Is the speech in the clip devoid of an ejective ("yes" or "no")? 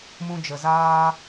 yes